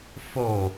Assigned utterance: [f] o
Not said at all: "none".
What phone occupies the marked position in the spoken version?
f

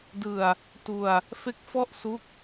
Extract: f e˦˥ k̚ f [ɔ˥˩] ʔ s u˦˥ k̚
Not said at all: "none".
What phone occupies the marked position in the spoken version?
ɔ˥˩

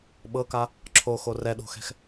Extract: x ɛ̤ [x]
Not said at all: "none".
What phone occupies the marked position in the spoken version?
x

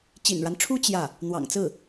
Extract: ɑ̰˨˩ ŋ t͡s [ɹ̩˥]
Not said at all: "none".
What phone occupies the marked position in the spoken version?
ɹ̩˥˩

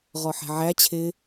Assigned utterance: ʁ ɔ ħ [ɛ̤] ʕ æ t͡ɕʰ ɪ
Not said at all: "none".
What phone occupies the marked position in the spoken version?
ɛ̤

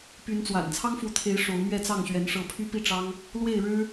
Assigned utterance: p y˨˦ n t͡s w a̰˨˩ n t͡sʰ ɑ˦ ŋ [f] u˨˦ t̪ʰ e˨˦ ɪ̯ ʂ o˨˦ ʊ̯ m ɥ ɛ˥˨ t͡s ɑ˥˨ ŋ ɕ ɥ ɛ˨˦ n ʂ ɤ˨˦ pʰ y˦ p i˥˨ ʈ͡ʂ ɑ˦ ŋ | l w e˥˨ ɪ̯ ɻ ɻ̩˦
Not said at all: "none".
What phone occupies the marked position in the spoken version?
f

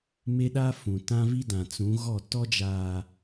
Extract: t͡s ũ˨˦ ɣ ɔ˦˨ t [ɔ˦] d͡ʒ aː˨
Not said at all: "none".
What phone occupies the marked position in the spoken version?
ɔ˦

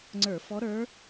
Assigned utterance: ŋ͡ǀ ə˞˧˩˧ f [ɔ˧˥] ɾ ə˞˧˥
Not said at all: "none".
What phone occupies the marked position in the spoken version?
ɔ˧˥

